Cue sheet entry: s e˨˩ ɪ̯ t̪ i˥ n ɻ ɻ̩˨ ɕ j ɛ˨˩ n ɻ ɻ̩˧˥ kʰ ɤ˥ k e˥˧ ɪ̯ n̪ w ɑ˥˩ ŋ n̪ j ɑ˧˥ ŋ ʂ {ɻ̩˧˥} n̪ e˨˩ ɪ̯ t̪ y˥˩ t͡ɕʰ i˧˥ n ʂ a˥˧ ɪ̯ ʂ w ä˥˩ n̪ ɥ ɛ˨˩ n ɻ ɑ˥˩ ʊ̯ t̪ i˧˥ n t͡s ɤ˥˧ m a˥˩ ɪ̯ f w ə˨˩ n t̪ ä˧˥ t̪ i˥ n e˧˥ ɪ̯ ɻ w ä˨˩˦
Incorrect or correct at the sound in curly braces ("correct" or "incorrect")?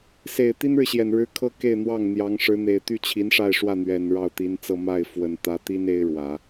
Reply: correct